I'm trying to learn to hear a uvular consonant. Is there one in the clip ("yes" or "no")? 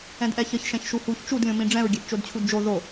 no